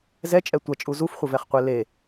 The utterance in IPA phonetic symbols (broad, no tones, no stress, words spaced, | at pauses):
zɛt͡ʃʼɛ tʷɐt͡ʃʼu zufχʷəvɛχqʷe le